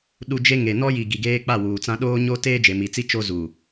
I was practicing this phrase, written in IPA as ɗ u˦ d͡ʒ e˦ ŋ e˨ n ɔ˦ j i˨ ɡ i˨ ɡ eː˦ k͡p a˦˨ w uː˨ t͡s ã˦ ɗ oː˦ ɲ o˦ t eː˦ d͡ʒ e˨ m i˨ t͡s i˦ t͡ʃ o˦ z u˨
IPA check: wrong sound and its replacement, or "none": none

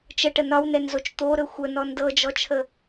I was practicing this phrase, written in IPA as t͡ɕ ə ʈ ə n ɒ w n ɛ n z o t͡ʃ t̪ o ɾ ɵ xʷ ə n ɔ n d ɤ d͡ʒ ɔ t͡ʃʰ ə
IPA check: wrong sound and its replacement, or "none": t͡ɕ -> t͡ʃ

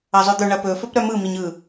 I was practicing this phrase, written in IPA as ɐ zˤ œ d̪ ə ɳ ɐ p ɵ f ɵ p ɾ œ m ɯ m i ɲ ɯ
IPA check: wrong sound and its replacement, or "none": ə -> œ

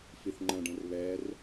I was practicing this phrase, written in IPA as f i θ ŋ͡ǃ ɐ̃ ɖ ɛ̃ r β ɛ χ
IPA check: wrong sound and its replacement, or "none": χ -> r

